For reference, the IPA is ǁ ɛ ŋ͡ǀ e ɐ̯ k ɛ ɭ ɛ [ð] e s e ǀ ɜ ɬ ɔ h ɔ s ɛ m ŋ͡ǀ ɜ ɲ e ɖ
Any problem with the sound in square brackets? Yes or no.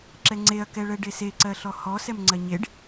yes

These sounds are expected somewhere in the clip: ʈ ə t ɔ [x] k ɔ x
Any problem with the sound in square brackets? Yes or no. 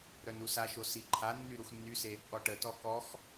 yes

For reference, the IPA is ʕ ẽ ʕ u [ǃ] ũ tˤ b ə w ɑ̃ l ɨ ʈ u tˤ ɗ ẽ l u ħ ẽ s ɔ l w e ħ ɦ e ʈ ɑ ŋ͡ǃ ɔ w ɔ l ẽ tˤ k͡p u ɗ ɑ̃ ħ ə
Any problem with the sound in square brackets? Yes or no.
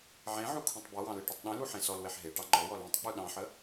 yes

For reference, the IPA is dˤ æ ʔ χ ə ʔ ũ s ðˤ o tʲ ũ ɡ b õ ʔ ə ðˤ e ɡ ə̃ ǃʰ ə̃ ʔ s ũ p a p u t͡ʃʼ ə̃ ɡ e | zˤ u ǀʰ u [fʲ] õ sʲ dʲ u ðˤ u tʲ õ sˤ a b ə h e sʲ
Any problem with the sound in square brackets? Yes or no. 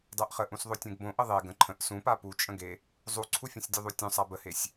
no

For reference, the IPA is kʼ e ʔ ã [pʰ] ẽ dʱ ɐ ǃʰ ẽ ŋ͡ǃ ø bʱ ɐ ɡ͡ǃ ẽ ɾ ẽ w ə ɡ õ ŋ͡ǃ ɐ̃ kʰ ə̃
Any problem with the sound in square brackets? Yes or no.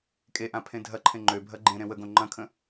no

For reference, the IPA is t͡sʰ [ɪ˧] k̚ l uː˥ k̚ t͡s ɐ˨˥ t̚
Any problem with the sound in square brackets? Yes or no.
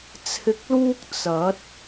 no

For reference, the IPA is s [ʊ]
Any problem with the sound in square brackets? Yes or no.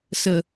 yes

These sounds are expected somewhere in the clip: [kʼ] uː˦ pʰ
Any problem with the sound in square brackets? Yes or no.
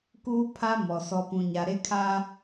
yes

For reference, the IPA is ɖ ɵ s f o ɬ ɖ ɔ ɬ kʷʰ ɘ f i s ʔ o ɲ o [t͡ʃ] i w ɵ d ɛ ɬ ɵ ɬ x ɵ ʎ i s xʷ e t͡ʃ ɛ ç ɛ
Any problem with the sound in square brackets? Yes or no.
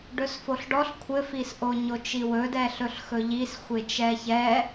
no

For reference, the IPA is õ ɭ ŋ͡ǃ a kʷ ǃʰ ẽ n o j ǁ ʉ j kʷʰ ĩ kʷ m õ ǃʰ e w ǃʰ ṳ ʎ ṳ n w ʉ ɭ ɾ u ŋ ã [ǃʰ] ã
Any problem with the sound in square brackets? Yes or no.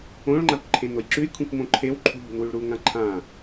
no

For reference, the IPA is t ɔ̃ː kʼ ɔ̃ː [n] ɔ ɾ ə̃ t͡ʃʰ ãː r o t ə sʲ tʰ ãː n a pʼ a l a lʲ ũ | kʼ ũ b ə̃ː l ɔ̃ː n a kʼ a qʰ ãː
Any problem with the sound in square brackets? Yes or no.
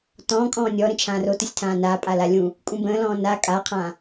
yes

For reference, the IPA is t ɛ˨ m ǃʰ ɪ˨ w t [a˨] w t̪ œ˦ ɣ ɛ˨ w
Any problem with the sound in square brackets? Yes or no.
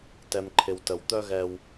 yes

